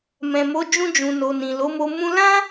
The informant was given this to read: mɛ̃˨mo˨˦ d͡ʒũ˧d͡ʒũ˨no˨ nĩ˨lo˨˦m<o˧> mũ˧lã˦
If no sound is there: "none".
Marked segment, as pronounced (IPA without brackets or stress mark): o˧